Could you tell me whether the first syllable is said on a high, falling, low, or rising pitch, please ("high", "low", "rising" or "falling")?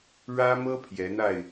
high